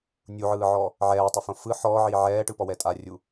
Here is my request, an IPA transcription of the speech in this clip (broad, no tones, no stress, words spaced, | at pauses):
nʲuʕɯːʕɔ | ʕɛːtˤufõ fɯ ħɔːʕiː ʕɛːʈɯpɔwɛ tʼarʲu